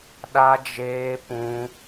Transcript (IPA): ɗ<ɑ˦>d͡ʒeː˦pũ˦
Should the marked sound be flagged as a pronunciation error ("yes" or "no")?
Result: yes